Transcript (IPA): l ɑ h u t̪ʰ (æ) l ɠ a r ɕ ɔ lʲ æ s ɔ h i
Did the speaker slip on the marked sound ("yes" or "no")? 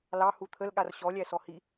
yes